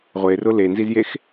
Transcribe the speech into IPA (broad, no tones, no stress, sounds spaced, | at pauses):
ʁʷ e r ʊ l e n z i z j e x